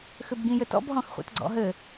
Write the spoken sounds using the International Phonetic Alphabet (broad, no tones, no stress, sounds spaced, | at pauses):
x ʏ b ɡ ĩ j ɘ t ɔ̰ b ɦ ɔ̃ x χʷ ḛ t ɡ͡ǀ ɔ̰ ɦ ɘ